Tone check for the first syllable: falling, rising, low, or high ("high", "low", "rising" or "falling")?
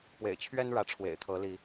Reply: low